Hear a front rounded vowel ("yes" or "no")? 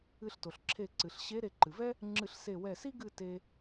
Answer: no